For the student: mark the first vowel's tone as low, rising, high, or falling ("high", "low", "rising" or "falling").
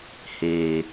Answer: low